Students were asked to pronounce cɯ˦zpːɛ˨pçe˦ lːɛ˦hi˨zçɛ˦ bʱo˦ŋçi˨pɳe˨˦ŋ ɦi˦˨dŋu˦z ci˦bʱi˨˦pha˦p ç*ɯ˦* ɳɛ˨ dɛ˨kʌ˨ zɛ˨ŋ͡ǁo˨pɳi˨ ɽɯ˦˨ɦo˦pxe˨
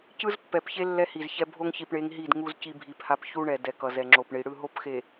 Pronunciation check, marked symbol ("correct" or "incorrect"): incorrect